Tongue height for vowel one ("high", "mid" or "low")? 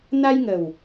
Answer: low